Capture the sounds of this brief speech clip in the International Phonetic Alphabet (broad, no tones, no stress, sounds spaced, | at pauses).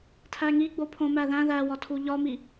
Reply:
tʰ æ ŋ i ɡ͡b o pʰ õ m æ ð æ̃ ð æ w ɒ tʰ u ʎ ɒ m i